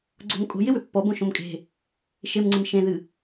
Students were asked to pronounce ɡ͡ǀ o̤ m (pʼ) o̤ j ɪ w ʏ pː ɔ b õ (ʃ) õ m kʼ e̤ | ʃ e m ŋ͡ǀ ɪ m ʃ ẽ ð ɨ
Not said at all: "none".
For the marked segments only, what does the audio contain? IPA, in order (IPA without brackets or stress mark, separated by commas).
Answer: kʼ, ʃ